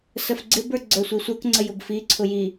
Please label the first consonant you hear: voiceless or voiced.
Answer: voiceless